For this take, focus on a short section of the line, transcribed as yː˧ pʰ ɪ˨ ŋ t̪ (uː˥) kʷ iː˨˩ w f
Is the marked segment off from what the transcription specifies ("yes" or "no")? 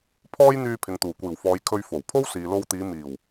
yes